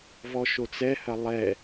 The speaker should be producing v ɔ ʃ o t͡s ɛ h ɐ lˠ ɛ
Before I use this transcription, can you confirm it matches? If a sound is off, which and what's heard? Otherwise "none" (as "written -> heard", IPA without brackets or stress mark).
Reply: none